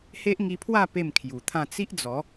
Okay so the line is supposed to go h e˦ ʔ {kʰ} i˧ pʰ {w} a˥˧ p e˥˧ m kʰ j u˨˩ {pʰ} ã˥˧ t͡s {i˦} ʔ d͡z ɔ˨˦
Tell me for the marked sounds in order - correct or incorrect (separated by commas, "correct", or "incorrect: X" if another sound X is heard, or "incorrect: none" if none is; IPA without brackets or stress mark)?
incorrect: ŋ, correct, incorrect: t̪ʰ, correct